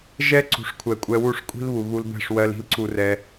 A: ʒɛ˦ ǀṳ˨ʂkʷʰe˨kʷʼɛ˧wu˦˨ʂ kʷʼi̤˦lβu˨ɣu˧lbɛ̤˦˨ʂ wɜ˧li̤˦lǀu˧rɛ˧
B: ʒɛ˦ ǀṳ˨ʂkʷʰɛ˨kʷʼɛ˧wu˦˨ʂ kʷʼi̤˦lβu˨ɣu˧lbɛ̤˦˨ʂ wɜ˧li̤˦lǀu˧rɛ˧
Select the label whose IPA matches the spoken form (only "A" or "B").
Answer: B